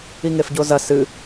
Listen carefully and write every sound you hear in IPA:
i ŋ e f ɟ o z ɐ s ɨ

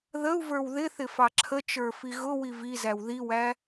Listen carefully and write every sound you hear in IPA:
ð ə u̯ v ə˞ w ð ɪ θ ɪ f ɑ ǁʰ ə t͡ʃ ə˞ f i ɣ ʊ w i v i z æ w ð i w æ

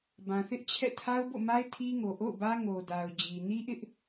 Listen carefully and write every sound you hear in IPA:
b ã˨ θ ɪ˦ ʔ t͡ɕʰ ɛ̰˦˨ tʰ a˦ ʊ̯ b o̰˦˨ m a˦ ɪ̯ tʰ i˦ ŋ o˨ ʔ o̰˦˨ ʊ̯ b ä˦ ŋ o˨ d a˨ ʊ̯ d͡ʑ i˨ n i˦ ʔ ɪ˦ ʔ

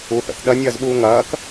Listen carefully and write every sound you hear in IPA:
u θ ə̰ θ ɗ ɐ nʲ ɐː z ɓ uː ŋ ɐː k

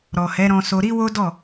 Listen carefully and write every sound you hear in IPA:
ɾ ɔ˨ h ɛ˨˦ ɾ ɔ̃˧ s o˧ ɾ i˦ w o˦ d ɔ˦˨

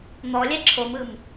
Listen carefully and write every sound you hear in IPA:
n̪ ɔ lʲ ɛ ǁʰ o m ɯ m

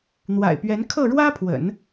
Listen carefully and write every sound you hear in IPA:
n̪ w a̰˨˩ ɪ̯ p ɥ ɛ˧˥ n kʰ ɤ˥˩ ɻ w ä˥ pʰ w ə̰˨˩˦ n

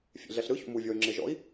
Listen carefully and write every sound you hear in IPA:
fʲ ḛ ɮ ɛ ɬ ɾ ɯ ç ṵ m u vʲ ɔ y̯ ŋ͡ǁ e ʒ ɔ̰ i̯

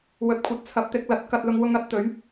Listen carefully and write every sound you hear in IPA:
w ɵ˨ t̚ kʷʰ ɐ˨˥ t̚ t͡sʰ ɐ˨˥ p̚ t̪ ɪ˨˥ k̚ l ɐ˨˥ t̚ k ɐ˨ t̚ l ʊ˨ ŋ w ʊ˨˧ ŋ ɐ˧ t̚ t̪ ɵ˨˥ ɥ

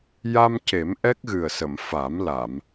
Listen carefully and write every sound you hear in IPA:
j a˧ m c e˨˩˦ m ʔ ɛ˦˥ k̚ ɣ ɨ˨˩ ə̯ s ə˨˩˨ m f a˨˩˦ m l a˨˩˨ m

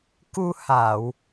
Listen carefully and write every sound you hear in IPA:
k u˧ h a˨˩˨ w

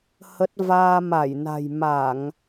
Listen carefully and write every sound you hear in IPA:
h ə˦˥ t̚ v aː˧ m a˧˩ j n a̤˨˩ j m a˧˩˨ ŋ

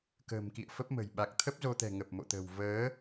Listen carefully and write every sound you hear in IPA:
k ə̤ː˨˩ m k ḭ˧˨ ə̯ f ə˦˥ p̚ m ə̤˨˩ j ɓ a˨˩ k̚ t̪ʰ ə˦˥ p̚ z o˧ t̪ ɛ̤˨˩ ŋ ə˨˩ p̚ m o̰˧˨ t̪ ə̤˨˩ w v əː˨˦

